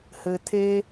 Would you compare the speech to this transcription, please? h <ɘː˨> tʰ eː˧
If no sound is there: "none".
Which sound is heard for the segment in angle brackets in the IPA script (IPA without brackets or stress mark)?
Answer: ɘː˨